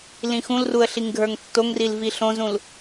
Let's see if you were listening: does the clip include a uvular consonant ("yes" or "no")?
no